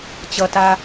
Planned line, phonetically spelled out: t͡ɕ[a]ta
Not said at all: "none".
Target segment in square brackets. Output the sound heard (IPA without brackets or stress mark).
ʌ